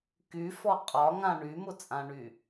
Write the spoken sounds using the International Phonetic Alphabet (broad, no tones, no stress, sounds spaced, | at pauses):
k y f ɔ qʼ ɒ ŋ ã ɳ y m ʊ t͡sʼ ã ɳ y